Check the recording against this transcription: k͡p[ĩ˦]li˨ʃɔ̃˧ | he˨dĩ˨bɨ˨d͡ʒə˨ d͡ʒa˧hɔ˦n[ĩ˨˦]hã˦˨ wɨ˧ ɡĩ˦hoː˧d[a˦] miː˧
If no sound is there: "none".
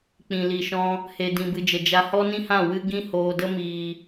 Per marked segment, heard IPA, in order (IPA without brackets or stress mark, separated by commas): ĩ˨, ĩ˦, ə˦